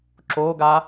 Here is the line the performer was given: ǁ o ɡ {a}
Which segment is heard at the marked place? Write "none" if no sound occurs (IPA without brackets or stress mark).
a